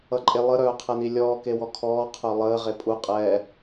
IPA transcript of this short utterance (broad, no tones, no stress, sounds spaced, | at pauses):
ʌ ǃʼ e lˠ ə ɾ œː qʰ ɛ n i lʲ ɔː k e w ɔ kʰ ɔː qʰ œ lˠ əː ʁ e pʼ u qʼ ɛː